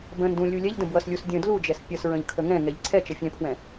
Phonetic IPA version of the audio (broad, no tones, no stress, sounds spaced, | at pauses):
b ə̃ n d ũ lʲ u lʲ ɛ ʎ d ə̃ b w ʌ s lʲ u s dʲ ə̃ d l u d͡ʒ ɛ s pʲ ʌ s ɹ ə̃ ʎ kʰ ə ŋ ɛ̃ ŋ ɛ ʎ ǀʰ ɛ t͡ʃ ʌ fʲ ɛ̃ pʰ w ɛ̃